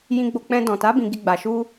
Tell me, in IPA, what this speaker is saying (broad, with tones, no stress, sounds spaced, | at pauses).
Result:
j ĩ˧ ɡ͡b o˧ k͡p ɛ̃˧ d ɔ̃˨ t a˨˦ b ĩ˧ ɡ i˧ ɡ͡b a˨ ʃ u˧